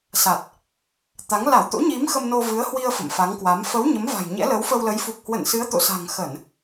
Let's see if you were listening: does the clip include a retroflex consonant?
no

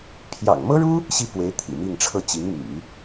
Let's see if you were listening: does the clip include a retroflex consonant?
yes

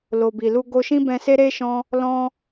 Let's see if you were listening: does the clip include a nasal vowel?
yes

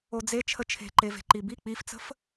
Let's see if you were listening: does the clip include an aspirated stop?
yes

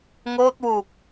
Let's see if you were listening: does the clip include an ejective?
no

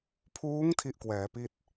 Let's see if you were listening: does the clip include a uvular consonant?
no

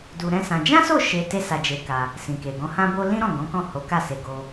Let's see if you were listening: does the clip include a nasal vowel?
yes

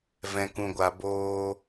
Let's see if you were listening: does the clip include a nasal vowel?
yes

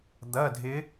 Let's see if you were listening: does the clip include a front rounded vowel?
no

